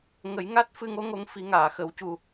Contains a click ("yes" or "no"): no